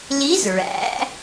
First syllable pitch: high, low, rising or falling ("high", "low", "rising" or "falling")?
rising